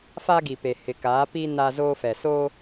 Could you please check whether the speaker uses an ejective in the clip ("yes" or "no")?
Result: no